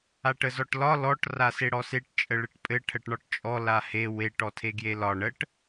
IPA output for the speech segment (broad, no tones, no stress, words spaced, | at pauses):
aʈəzɔʈlɒ lɔʈ raseɽɔseʈ t͡ʃʼəɭɘʈpʼɘ ʈʰəʈɳɒʈt͡ʃʼɔ lahe weʈ ɔtʰeɡjelɒ ɳəʈ